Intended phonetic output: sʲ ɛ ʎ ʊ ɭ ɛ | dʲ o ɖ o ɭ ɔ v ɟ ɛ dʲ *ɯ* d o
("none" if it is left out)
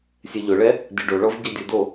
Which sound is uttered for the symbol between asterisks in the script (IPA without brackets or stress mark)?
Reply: u